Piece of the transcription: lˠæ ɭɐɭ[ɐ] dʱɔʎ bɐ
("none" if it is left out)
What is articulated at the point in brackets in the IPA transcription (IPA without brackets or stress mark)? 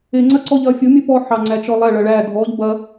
æ